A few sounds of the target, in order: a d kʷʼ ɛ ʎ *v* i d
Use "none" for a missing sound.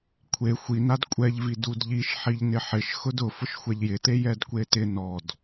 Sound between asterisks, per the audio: v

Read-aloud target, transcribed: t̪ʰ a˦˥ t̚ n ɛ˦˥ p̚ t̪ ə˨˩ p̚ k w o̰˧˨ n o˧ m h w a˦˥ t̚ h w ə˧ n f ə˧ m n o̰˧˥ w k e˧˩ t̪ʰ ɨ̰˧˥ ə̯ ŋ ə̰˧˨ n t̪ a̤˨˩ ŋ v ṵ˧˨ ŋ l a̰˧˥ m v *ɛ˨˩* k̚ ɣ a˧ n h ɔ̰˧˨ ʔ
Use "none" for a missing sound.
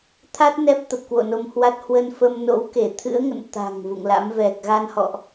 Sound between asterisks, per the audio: ɛ˨˩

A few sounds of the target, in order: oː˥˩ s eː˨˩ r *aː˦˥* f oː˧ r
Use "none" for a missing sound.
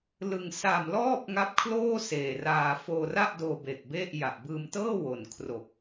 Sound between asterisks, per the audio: aː˧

